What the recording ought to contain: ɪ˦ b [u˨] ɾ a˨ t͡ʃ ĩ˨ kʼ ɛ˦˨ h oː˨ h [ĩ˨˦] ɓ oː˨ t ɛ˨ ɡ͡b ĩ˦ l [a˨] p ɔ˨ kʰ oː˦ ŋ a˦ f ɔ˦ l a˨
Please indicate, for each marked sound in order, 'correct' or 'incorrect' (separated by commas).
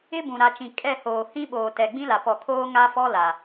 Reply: incorrect, incorrect, correct